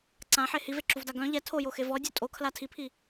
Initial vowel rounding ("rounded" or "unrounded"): unrounded